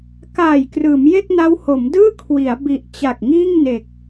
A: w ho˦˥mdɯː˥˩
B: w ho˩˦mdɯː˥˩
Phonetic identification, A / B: B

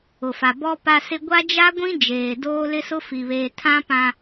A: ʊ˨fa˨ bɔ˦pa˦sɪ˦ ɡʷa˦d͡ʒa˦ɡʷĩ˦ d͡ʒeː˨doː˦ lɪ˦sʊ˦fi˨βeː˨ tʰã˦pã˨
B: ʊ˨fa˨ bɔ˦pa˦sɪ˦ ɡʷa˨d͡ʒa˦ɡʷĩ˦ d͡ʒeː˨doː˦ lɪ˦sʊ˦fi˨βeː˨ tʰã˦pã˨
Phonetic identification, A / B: A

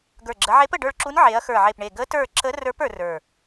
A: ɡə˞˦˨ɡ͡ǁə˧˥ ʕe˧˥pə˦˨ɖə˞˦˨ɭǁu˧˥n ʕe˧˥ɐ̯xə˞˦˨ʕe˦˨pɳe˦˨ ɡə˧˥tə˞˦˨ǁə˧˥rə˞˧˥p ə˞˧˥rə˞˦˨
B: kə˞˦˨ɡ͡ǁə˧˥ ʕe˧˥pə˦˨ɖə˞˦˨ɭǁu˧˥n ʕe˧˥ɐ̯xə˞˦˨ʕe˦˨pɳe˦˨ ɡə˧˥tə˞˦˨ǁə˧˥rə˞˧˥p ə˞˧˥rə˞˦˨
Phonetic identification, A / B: A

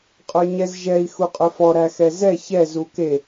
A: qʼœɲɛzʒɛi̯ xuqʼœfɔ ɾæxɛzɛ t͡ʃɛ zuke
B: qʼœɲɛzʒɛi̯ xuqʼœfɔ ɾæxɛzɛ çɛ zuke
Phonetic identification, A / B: B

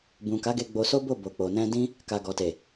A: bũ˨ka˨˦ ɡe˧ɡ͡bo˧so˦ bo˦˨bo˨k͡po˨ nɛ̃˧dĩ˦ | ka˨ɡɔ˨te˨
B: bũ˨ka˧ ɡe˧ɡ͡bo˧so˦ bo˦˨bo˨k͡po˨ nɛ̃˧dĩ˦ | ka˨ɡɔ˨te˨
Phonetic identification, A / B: A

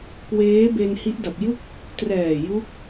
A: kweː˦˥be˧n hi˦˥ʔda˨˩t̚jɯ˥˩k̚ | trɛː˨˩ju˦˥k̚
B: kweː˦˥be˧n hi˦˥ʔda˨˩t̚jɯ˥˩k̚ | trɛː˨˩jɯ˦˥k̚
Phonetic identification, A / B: A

